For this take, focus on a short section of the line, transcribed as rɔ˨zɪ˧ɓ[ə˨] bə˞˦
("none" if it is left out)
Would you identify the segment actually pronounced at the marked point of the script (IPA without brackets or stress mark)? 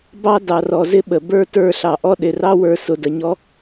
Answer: ə˨